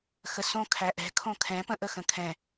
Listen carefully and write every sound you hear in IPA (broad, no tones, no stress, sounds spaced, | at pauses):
x ə s õ kʰ æ ʔ ɛ̤ kʰ õ kʰ ɛ̃ p ə̃ ʔ ə x ə̃ kʰ ɛ̃